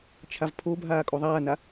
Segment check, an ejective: present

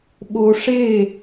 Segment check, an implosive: present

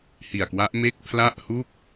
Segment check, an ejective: absent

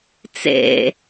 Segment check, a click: absent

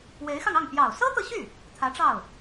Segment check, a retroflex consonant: present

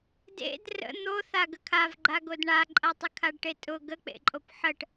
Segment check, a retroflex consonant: present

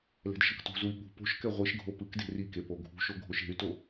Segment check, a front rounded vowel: present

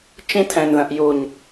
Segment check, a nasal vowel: present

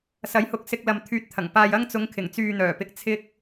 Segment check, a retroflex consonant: absent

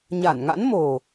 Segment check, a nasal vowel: absent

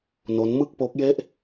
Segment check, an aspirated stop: absent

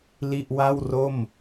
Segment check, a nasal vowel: absent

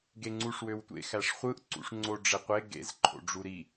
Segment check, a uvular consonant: present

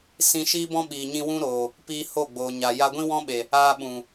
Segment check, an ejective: absent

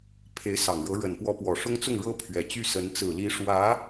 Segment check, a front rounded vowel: present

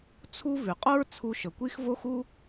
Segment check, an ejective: present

